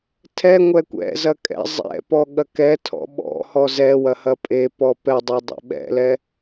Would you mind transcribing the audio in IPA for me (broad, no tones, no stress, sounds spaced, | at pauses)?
tʰ ɛ ŋʷ ɛ kʷ ɛ̰ z ɐ kʼ ɛ̰ zˤ ɛ̰ p ɔ ɠ ɐ k ɛ tʰ ɔ̰ ɓ ɔ̰ h ɔ z ɛ w ɐ h ɐ pʼ e p ɔ p ɛ dˤ ɛ dˤ ḛ ɓ ɛ̰ l ɛ